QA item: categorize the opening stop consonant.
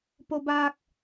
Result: plain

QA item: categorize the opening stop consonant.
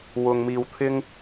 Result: aspirated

